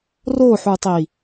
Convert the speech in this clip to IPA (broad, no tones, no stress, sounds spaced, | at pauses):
r o ħ u tˤ i